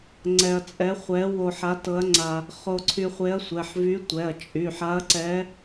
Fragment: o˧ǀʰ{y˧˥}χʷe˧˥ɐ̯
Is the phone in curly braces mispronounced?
yes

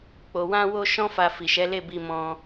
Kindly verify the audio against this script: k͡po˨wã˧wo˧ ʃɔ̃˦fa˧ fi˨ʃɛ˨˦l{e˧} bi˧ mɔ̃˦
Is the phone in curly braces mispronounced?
yes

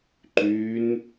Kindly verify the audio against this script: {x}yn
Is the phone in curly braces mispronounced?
yes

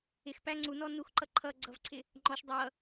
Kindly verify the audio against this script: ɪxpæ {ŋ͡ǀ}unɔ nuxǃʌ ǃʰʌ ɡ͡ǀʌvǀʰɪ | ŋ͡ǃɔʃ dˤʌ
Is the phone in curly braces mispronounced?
no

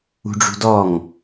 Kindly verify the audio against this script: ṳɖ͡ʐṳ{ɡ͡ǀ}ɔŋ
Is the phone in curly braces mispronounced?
yes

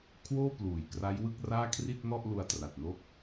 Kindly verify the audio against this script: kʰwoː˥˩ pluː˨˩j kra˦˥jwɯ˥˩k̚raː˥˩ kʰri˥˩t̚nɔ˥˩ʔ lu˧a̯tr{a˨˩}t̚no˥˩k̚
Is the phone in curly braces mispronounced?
no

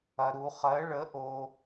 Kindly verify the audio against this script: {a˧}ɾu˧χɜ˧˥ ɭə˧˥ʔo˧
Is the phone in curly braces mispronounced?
yes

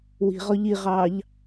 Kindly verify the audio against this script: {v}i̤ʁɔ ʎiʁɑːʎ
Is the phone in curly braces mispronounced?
yes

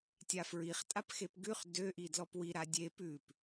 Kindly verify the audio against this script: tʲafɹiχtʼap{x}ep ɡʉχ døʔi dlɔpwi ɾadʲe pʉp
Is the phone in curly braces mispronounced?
no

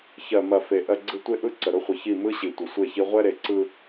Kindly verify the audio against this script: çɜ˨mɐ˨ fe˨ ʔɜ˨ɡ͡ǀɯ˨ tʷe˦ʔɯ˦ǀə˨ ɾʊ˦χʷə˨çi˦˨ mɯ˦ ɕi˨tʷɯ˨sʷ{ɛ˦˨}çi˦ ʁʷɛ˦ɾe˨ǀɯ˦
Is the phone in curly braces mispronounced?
yes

